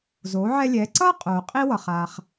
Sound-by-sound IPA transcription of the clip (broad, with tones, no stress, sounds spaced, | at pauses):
z o˩˧ ʕ ɛ˧ lʲ ɛ˩˧ ǀ ʌː˥ qʼ oː˩ qʼ i˥ w ʌ˩ χ aː˩ χ